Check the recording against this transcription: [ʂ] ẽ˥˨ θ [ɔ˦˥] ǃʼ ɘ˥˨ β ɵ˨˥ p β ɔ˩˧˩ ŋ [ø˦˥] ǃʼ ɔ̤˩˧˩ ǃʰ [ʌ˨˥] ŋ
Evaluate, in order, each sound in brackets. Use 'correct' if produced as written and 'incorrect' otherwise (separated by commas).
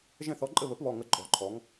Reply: incorrect, correct, incorrect, incorrect